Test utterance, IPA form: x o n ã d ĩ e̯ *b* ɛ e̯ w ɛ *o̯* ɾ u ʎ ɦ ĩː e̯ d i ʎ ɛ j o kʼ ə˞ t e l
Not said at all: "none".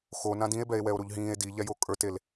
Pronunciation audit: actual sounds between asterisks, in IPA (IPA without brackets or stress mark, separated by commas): b, o̯